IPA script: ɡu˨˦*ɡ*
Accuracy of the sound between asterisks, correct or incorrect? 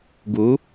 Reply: incorrect